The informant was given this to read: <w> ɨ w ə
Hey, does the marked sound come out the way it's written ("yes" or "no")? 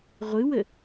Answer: no